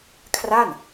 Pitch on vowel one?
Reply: falling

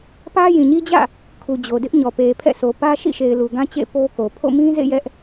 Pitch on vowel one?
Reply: high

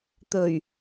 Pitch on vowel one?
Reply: low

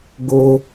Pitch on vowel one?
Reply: high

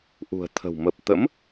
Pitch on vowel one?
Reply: low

